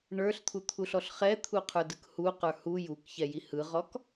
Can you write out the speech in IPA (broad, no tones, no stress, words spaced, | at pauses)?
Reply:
ɳə˞ɬt̪ʰut̪ʰuɬɔɬ χɛt̪ʰuqʰə˞dɯk huqə˞ hu jukçɛji hɯʁɔk